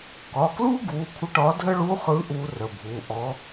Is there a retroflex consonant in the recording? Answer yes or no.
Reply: yes